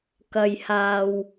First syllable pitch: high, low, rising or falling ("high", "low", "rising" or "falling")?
low